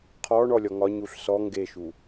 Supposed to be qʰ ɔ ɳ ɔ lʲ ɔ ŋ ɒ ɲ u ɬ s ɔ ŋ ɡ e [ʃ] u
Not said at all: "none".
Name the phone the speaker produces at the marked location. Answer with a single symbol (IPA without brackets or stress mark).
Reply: ʃ